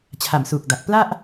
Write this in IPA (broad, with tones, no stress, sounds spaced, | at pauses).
t͡ɕʰ a˨˩ m s uː˨˩ k̚ d a˨˩ k̚ p l a˥˩ ʔ